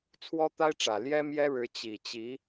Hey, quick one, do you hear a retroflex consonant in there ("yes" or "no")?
yes